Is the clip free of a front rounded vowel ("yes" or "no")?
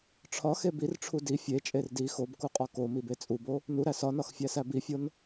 yes